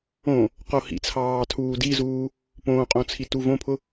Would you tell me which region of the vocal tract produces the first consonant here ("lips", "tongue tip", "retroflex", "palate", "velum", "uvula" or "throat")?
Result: uvula